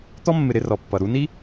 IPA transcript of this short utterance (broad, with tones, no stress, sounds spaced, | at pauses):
t̪ ɔ˥ mː ɪ˨ ɾ ɪ˦ r ɔ˩ pː ʌ˩ ɾ u˦ n i˥